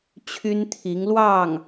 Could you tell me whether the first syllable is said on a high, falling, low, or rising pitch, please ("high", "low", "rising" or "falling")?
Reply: high